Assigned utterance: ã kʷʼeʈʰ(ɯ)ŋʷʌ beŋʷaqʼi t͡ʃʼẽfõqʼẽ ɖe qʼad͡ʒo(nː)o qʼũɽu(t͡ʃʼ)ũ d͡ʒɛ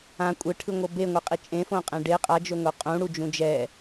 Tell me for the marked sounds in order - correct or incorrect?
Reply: correct, incorrect: ŋ, incorrect: d͡ʒ

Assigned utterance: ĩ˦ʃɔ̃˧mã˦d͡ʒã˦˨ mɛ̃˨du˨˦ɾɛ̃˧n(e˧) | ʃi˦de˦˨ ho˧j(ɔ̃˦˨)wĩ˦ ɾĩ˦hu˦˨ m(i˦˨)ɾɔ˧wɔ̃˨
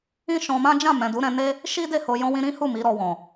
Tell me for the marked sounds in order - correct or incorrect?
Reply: incorrect: e˦, incorrect: ɔ̃˦, incorrect: i˨˦

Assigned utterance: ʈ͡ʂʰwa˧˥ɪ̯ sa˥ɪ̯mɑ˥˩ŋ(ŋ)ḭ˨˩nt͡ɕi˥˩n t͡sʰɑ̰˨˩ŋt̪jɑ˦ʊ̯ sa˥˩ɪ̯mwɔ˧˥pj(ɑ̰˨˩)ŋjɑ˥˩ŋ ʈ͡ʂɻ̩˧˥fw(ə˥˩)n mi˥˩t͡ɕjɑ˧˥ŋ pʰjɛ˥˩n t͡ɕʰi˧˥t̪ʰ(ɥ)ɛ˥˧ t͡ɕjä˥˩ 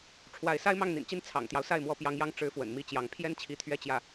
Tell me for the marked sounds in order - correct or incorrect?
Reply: incorrect: n̪, incorrect: ɑ˧˥, incorrect: ə̰˨˩, correct

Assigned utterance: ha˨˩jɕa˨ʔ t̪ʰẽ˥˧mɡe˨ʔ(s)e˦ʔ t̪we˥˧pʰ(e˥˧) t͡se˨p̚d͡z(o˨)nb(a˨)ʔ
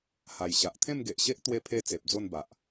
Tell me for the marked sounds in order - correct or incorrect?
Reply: incorrect: ɕ, correct, incorrect: o˥˧, correct

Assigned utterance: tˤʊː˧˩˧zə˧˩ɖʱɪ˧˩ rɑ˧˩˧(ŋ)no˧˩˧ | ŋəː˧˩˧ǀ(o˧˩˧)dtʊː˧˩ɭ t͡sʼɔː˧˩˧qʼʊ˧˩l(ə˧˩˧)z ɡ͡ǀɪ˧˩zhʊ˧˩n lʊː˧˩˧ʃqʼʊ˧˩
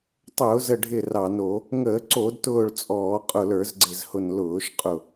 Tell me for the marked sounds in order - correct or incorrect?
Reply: incorrect: none, correct, incorrect: ə˞˧˩˧

